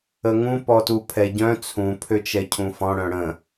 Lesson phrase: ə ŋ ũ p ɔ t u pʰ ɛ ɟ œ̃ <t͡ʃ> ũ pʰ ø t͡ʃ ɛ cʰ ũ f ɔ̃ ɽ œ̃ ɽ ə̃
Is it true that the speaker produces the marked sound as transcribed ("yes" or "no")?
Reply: no